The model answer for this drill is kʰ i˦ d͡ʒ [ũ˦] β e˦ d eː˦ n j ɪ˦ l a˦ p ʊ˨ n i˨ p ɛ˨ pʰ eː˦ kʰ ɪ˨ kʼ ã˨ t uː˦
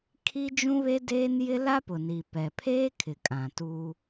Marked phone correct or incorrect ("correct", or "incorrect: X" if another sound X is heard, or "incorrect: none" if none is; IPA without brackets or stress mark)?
correct